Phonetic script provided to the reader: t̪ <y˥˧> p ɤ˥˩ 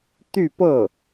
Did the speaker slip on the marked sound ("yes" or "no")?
no